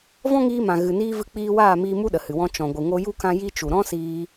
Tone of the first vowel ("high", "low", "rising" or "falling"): high